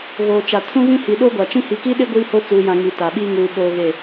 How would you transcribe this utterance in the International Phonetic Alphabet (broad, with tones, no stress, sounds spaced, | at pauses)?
ɣ oː˨ t͡ʃ a˨ tʰ ũ˦ ɣ ĩ˦ h i˨ ɗ o˦ ɡʷ a˨ t͡ʃ ĩ˦ h i˨ k i˦ ɗ ɪ˦ ɡʷ iː˦ h o˦ t͡s uː˨ j ã˨ ŋ i˨ t a˨ ɓ iː˦ ŋ uː˨ ɓ oː˦ ɣ e˦˨